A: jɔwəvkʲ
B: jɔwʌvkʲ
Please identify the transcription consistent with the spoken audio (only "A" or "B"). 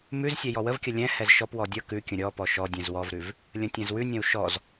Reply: A